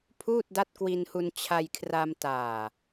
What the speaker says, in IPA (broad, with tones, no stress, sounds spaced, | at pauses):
pʰ uː˥˩ t̚ d a˦˥ t̚ k w i˧ n h u˧ n t͡ɕʰ a˧ j kʰ r a˧ m t aː˨˩